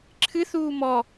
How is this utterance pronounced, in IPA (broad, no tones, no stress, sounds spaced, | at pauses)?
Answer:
ǁʰ ɨ θ uː m ɔ